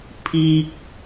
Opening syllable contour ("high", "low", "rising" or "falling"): high